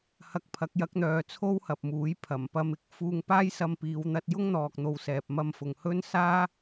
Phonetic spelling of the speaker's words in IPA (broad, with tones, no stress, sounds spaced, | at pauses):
h ɐ˧ k̚ pʰ ɐ˨˥ k̚ j ɐ˨˥ k̚ n̪ œː˨ t͡sʰ o˥ w h ɐ˨ p̚ m uː˨˥ j pʰ ɐ˨˩ m p ɐ˧ m ɪ˨˥ k̚ f uː˧ ŋ p aː˥ j s ɐ˧ m p iː˨˧ w n̪ ɐ˧ t̚ j ʊ˥ ŋ n̪ ɔː˨ k̚ n̪ o˨ w s ɛː˨ p̚ m ɐ˧ m f ʊ˨ ŋ h ɵ˥ n s aː˥